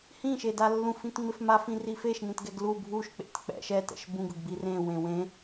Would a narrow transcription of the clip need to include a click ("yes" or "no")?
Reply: no